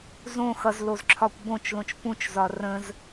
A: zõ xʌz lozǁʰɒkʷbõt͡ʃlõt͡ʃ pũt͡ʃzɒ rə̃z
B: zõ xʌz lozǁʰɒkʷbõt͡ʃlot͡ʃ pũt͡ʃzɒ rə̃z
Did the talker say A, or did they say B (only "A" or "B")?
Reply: A